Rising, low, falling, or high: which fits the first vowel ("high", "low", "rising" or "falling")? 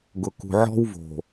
low